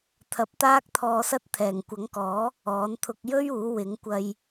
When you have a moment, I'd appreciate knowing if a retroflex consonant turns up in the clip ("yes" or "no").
no